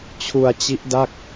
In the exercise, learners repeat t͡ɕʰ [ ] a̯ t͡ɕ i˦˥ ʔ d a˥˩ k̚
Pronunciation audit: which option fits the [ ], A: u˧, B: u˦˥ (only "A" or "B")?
A